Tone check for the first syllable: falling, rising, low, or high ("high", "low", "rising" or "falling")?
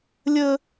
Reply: low